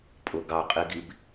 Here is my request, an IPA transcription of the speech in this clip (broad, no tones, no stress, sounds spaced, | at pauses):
pʼ ʊ ɡ ɑ qʼ i ɡ i b